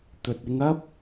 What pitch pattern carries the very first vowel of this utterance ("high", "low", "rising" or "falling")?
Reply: low